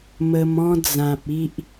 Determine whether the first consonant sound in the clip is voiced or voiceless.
voiced